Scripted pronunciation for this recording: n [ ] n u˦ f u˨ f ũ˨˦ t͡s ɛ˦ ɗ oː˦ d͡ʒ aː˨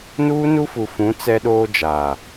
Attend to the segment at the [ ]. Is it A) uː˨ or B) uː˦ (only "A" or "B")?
B